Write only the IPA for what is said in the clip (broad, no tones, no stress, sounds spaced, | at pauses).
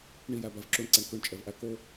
ɳ i j æ b æ v ǁ o ɳ ǀ æ ɳ k ø ɳ t͡ʃʼ ɛ v ʔ æ k o